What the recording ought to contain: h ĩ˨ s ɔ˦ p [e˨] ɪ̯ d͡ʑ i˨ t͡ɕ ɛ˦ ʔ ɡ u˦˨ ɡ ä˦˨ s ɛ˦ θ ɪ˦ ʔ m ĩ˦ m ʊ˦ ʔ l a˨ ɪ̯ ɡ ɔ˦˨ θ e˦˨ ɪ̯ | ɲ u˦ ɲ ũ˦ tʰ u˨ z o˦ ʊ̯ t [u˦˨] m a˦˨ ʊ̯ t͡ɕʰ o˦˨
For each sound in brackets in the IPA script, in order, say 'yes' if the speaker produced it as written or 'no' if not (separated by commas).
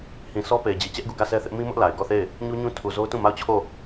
yes, no